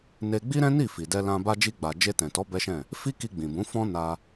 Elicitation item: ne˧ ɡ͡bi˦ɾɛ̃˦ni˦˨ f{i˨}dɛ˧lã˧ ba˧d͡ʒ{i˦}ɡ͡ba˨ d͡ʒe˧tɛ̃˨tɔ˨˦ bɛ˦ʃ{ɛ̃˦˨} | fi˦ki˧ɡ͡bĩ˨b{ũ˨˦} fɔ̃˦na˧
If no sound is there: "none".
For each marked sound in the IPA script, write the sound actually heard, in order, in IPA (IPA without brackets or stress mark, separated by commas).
i˨, i˧, ɛ̃˦˨, ũ˨˦